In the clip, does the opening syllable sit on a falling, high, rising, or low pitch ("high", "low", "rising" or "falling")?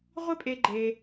high